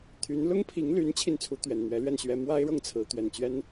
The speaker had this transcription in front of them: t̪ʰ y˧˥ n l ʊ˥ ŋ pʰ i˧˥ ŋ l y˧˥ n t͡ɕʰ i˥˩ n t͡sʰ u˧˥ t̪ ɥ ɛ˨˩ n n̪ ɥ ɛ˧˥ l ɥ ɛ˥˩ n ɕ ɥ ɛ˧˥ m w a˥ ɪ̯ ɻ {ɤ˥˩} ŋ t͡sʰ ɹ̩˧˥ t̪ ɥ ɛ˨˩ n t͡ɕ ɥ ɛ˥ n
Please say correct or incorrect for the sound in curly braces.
correct